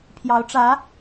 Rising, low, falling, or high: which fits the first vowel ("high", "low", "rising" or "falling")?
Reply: rising